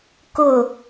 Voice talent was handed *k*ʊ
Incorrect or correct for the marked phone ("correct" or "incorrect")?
correct